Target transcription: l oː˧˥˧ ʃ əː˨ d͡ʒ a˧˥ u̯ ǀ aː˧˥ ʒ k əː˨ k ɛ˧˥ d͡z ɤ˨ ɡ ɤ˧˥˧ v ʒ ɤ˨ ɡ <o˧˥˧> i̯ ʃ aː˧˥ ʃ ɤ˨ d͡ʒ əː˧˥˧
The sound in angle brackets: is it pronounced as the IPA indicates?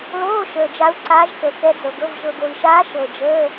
no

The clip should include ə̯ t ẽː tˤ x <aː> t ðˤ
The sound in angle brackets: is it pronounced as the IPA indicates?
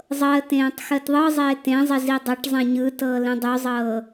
no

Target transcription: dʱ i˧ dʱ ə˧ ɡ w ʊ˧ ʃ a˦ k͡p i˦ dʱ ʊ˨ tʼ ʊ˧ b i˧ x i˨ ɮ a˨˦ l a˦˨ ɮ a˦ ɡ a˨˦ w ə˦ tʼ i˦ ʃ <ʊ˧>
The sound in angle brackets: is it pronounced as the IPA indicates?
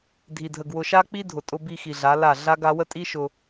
yes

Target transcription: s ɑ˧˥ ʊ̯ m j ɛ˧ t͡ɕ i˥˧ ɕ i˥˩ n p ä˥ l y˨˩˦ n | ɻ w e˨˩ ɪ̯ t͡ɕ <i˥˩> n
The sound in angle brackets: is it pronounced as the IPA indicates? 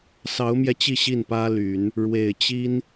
no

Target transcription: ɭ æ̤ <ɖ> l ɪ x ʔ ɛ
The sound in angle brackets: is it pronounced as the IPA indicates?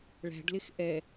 yes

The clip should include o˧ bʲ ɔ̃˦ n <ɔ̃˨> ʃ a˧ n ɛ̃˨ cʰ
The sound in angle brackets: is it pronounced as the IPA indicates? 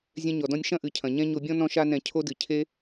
no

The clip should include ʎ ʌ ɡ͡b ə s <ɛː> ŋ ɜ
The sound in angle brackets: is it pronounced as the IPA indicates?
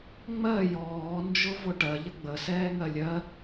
yes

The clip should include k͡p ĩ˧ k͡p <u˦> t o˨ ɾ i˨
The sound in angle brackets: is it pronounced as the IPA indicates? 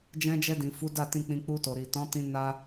no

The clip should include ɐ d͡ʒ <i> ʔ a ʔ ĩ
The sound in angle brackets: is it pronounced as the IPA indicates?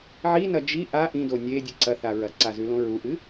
yes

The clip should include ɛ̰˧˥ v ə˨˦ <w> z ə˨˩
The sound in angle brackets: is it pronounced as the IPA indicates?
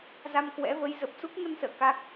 no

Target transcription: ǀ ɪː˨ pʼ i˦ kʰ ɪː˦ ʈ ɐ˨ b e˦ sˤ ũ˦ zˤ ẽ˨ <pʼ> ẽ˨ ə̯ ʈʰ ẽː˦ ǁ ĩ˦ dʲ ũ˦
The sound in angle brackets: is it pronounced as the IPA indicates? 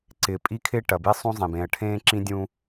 no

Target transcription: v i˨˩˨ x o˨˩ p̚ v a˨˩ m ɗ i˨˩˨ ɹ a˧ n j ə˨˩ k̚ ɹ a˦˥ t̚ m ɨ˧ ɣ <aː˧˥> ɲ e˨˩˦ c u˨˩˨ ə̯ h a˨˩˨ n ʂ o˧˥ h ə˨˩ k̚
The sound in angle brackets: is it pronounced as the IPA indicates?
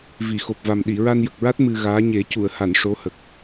yes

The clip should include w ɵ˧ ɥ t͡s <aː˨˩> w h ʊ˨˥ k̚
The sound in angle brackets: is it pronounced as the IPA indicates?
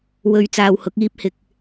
no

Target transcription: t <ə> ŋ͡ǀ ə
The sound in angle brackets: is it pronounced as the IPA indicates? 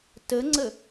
yes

